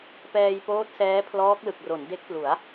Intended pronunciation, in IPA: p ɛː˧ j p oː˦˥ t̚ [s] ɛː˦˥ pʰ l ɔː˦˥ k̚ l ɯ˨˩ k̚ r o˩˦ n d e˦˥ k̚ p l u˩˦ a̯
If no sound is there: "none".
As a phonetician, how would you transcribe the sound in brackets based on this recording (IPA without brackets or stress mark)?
s